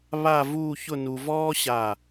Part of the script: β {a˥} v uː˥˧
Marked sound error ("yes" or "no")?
yes